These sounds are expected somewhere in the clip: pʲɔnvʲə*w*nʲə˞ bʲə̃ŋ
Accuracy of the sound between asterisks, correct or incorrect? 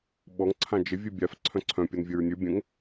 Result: incorrect